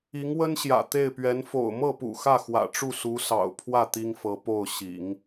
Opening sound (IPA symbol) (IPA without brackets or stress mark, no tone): i